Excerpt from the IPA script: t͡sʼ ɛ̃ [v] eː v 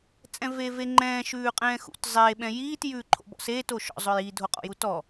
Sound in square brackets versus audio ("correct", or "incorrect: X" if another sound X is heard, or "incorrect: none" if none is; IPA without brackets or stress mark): correct